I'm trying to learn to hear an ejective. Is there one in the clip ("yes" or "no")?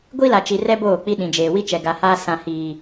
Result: no